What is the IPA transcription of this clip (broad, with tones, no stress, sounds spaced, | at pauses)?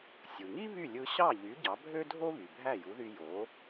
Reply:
sʲ ɯ˩ ŋ i˥ β y˥˩ lʲ ɯ˧ ɕ ɑ˥˩ ʎ y˩˥ ɟ ɑ˩˥ bʱ ø˥ dʱ o˥ β y˩ bʱ æ˥˩ j u˩˥ ð y˧ j o˩˥